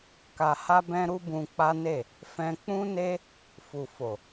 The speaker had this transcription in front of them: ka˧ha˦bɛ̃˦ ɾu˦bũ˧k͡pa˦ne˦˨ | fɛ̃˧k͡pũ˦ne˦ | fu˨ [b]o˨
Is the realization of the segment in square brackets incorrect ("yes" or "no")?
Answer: yes